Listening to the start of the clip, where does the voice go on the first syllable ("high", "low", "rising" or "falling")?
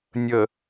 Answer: low